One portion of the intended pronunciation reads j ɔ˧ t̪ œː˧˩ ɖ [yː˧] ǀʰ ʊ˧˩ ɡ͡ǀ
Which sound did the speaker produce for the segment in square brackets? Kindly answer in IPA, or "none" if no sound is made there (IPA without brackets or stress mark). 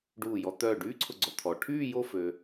yː˥